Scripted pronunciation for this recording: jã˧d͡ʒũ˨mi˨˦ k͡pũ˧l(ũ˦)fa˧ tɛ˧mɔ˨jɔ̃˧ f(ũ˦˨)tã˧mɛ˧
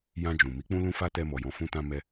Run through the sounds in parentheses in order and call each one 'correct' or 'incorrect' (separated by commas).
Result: incorrect, incorrect